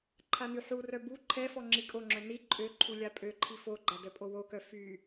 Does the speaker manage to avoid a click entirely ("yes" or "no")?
no